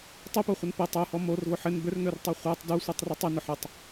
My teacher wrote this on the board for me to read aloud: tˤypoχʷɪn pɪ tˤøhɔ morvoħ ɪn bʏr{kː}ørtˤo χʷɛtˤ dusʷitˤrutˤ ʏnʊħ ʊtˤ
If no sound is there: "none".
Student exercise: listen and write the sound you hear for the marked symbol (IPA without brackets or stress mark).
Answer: ŋ